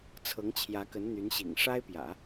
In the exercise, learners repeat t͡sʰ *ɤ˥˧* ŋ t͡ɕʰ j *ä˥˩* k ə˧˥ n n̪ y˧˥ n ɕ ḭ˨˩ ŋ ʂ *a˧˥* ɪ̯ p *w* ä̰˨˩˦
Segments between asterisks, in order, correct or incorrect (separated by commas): incorrect, incorrect, incorrect, incorrect